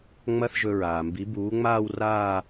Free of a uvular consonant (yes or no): yes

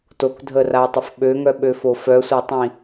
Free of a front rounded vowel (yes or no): no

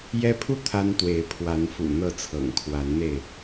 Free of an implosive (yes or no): yes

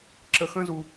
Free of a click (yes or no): no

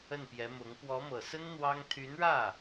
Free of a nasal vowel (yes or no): yes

